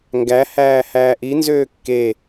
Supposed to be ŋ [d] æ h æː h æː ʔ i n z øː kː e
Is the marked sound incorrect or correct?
incorrect